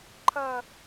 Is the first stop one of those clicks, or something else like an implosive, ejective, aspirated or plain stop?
click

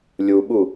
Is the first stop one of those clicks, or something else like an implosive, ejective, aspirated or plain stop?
implosive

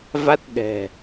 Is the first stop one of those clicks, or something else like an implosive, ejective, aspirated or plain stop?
plain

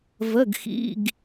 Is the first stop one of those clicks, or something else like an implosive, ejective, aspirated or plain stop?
plain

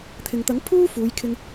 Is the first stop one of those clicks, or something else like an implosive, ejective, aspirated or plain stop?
aspirated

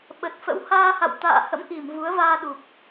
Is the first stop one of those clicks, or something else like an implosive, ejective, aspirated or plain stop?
implosive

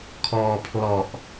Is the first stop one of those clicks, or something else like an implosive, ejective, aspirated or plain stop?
aspirated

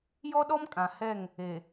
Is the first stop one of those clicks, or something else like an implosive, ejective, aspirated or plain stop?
implosive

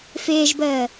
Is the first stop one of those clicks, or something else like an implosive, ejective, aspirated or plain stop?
plain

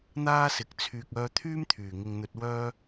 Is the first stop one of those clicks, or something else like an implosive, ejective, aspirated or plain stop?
plain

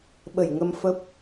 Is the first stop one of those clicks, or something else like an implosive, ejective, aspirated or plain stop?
implosive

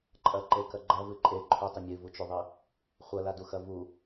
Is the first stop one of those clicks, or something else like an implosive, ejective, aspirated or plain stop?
click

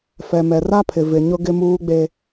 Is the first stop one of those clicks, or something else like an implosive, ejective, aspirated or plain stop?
aspirated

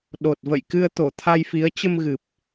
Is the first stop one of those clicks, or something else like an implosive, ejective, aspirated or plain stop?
implosive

